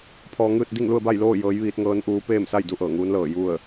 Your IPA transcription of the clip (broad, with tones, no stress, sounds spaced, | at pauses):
pʰ ɔː˧ ŋ ɯː˥˨ t̚ d i˥˨ ŋ l u˥˨ ə̯ b a˥˨ j l oː˥˨ j ɤː˧˥ j ʋ iː˧˥ t̚ ŋ ɤː˧˥ n ʔ uː˧˥ p eː˥˨ m s a˥˨ j d u˥˨ ʔ ɤː˧˩ ŋ uː˧˥ n l ɤː˧˩ j u˥˨ ə̯